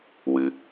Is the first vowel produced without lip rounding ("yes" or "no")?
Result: yes